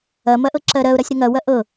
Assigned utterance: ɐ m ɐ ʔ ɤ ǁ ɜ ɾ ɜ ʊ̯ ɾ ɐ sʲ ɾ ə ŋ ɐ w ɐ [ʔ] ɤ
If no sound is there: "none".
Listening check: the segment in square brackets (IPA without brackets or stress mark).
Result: ʔ